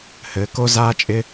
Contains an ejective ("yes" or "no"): yes